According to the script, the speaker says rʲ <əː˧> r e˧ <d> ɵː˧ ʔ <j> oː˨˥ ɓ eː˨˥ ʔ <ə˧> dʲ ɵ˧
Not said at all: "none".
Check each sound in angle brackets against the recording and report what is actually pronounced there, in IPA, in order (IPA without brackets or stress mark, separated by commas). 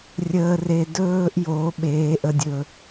əː˧, d, j, ə˧